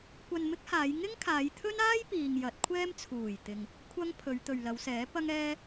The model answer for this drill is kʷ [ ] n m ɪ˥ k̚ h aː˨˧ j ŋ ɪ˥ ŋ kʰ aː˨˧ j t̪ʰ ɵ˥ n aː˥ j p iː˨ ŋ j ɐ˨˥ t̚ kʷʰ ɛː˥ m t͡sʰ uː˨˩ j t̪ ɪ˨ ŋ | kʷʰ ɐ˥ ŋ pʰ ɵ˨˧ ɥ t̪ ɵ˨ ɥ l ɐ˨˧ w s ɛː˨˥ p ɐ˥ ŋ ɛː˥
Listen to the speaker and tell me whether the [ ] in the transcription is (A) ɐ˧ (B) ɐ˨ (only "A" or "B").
A